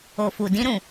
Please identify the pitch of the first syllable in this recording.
low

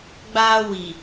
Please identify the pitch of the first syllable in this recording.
high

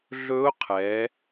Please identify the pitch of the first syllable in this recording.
rising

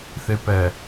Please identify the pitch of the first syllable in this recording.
low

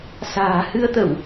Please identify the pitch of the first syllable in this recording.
low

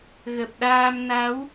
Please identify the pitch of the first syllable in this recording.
low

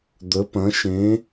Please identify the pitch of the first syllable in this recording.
rising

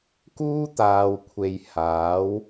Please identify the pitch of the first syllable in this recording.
high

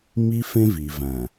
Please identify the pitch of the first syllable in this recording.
high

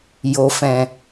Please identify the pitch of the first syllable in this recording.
low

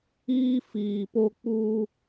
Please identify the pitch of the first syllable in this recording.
high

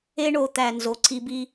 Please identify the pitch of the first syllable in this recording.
high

